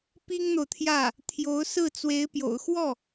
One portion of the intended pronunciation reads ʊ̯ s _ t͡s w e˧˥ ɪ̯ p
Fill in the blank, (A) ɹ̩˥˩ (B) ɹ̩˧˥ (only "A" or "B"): A